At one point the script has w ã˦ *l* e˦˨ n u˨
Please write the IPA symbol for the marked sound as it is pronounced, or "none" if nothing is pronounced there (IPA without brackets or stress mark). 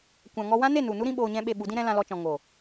n